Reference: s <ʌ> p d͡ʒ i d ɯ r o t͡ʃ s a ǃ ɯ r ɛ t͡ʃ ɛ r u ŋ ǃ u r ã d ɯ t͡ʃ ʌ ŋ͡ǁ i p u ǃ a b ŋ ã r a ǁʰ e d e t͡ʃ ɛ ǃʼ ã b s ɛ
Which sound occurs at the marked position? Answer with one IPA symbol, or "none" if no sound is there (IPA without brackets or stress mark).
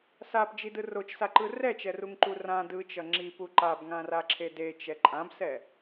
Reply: a